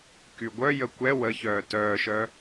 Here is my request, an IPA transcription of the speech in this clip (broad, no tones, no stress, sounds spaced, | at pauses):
k y ɡʷ œ j ə kʷ ɛ w ə ç œː t œː ʃ œ